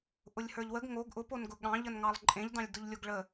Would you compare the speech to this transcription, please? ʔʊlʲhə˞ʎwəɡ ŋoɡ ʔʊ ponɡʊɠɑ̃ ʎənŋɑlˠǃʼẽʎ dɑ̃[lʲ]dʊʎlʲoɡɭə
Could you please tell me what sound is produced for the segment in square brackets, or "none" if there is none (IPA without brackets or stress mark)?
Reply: lʲ